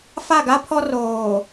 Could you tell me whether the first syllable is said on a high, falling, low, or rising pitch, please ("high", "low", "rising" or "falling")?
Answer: falling